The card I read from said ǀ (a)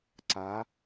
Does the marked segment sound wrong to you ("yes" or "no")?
no